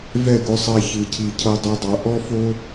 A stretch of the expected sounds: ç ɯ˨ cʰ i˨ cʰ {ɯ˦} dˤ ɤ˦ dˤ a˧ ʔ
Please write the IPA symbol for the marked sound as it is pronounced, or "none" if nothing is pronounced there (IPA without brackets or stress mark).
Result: ɤ˦